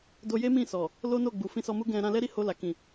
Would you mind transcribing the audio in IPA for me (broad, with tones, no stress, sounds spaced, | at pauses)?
d o˧ j e˦ m ĩ˦˨ s ɔ˨ | l o˦ n o˦˨ ɡ͡b u˨ f ĩ˧ s ɔ˧ m u˦ ɡ ɛ̃˧ ɾ ã˧ l ɛ˦ ɾ i˦˨ h o˧ l a˨ k ĩ˨